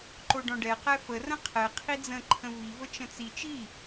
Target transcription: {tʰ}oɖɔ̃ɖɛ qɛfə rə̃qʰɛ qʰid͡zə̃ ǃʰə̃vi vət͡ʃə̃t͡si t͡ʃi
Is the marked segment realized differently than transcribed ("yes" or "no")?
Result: yes